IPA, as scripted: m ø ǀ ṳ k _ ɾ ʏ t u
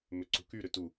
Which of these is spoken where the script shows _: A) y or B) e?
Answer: A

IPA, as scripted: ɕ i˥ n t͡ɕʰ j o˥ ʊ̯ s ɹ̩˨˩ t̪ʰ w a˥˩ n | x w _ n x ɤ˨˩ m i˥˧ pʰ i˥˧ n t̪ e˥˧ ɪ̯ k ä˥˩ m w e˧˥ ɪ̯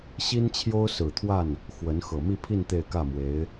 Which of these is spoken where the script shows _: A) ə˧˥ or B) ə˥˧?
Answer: A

